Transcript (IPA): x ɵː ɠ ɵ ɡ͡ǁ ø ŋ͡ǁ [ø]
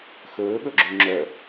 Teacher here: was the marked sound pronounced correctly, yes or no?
no